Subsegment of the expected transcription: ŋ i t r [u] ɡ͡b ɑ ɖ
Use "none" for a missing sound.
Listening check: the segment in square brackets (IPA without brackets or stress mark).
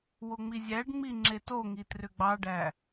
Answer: ʏ